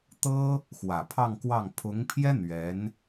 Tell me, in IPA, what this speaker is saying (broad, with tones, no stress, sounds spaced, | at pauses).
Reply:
t̪ ɤ˥ | x w ä˨˩ pʰ ɑ˥˧ ŋ k w ɑ˥˩ ŋ pʰ ʊ˧˥ ŋ pʰ j ɛ˥ n̪ ɥ ɛ˧˥ n